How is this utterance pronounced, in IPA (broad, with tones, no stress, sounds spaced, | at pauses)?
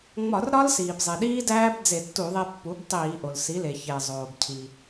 ŋ͡m ɒ˧˩˧ r ɾ ɒ˦˥ l s iː˩ b zˤ e˩ ɗ iː˦˥ d æː˦˥ b d͡z e˧˩˧ tː u˧˩˧ ðˤ e˧ pː u˩˥ b tˤ iː˧˩˧ ʔ o˩ l s i˩˥ l e˩ ç e˩ zˤ oː˩ b cʰ i˩